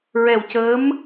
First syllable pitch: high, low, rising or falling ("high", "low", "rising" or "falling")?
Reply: low